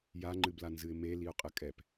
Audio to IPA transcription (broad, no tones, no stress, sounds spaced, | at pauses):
j a ŋ͡ǃ ɨ b l a n z ɨ ɪ̯ m e l i ʊ̯ qʼ ɘ kʼ ɛ p